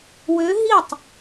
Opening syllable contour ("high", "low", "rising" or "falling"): rising